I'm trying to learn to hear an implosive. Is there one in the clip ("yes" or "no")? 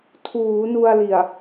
no